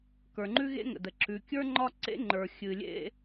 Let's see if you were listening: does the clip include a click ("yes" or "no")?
yes